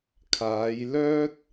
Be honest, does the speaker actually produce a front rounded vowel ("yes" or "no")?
yes